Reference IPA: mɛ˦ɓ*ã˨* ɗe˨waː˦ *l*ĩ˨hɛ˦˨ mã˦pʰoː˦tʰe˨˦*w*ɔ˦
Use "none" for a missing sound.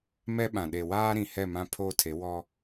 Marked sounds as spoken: ã˨, ɾ, w

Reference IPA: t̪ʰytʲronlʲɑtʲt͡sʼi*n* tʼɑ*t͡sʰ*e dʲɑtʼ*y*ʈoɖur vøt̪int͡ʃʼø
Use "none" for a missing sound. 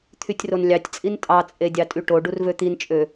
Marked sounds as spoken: n, t͡sʼ, y

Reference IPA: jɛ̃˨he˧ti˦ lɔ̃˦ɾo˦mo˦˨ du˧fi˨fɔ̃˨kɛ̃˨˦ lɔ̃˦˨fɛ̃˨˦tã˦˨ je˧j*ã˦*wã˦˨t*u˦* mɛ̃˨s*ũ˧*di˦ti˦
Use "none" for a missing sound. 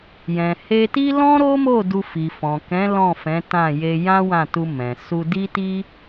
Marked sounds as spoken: ã˦, u˧, u˧

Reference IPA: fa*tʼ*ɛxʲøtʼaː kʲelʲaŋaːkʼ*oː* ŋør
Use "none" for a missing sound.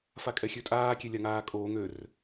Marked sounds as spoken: kʼ, oː

